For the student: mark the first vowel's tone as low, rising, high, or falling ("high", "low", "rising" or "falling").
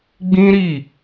high